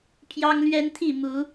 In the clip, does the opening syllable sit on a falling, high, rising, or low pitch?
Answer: high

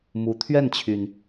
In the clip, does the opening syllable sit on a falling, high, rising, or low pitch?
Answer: rising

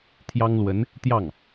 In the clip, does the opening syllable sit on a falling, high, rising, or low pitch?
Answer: high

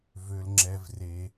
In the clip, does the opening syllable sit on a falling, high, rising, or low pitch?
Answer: low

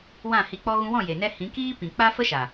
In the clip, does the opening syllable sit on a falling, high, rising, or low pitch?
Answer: falling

